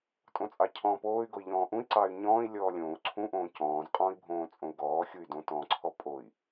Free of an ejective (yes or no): no